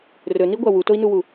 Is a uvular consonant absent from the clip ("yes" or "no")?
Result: yes